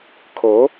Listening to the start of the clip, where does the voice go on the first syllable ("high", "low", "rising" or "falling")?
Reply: rising